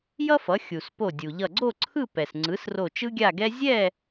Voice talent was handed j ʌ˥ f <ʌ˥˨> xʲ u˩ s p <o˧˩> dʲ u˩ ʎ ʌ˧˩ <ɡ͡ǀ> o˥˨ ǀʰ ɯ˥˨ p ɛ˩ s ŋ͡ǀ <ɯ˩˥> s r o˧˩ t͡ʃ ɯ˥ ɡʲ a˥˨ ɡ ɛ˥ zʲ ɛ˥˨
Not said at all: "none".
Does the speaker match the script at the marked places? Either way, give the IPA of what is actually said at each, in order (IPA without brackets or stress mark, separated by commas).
ʌ˩˥, o˧˩, ɡ͡ǀ, ɯ˩˥